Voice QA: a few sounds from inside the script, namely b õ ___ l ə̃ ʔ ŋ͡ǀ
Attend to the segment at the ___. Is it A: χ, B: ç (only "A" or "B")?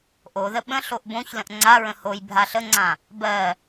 B